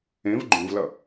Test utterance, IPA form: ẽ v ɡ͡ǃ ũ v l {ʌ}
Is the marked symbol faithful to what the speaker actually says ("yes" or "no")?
yes